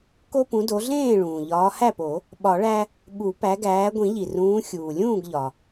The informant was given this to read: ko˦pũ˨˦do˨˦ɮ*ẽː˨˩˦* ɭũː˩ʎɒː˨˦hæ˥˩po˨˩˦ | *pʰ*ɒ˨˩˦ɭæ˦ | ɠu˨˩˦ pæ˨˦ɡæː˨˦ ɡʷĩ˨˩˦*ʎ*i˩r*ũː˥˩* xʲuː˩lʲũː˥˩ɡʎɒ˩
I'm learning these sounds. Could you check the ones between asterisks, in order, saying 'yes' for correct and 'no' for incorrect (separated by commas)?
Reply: no, no, yes, no